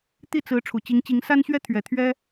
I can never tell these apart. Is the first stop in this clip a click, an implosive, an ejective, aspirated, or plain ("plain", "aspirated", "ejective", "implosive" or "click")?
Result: plain